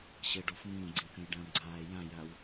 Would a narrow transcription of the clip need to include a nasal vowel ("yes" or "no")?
yes